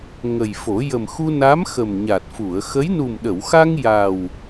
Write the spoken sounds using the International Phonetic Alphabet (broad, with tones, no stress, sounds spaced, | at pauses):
ŋ ə˨˩ j f o˨˩˦ j ə˨˩ m x u˧ n a˧˥ m x ə˨˩ m ɲ a˨˩ t̚ f u˨˩˨ ə̯ x ə˧˥ j n u˨˩ m ɗ ə˨˩˨ w x a˧ ŋ j a˨˩ w